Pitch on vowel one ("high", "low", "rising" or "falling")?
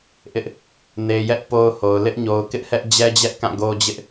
high